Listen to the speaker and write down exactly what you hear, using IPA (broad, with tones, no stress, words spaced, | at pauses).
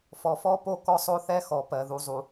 fɔ˨fɔ˦ po˦kɔ˦sˤo˦θɛ˦ xɔ˨pɜ˨ ðu˨zˤu˨